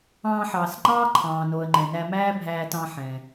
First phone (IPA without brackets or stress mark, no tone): ɑ̃ː